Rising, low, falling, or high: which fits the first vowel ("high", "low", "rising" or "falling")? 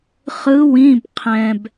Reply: rising